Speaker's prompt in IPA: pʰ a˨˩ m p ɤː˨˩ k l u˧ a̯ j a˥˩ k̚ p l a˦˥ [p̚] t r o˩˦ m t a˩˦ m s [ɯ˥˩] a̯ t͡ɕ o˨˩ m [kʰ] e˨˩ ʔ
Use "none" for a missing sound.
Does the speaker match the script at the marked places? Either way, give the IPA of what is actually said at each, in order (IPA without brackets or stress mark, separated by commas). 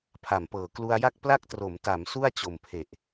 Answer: k̚, u˥˩, pʰ